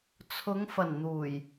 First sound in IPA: t͡sʰ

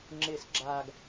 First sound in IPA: ŋ͡ǁ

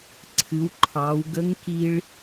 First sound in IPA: ǀʰ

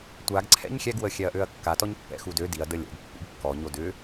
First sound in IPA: tʷ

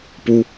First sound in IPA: p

